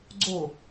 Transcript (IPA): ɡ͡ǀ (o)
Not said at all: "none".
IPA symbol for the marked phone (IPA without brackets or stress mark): o